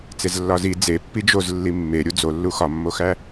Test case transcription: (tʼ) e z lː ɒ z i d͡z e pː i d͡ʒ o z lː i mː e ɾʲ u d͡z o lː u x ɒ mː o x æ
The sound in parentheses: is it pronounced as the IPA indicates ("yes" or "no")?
no